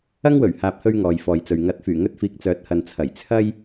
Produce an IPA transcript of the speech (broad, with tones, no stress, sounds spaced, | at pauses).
ɐ˥ ŋ w ɵ˨˩ ɥ h aː˨ p̚ h ɵ˧ ɥ ŋ ɔː˨ j f ɔː˨ j t͡s ɵ˨ ɥ ŋ ɐ˨˥ t̚ f yː˨˩ ŋ ɵ˥ t̚ f iː˧ k̚ t͡s œː˨˥ t̚ h ɐ˨ n t͡sʰ ɐ˨˩ j t͡sʰ ɐ˥ j